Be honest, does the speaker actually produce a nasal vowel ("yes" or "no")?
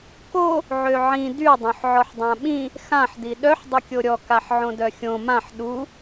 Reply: yes